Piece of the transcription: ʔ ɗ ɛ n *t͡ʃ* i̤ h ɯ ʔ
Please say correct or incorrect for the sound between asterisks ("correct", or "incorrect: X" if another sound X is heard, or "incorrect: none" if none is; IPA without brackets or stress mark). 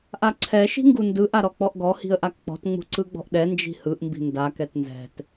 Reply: incorrect: d͡ʒ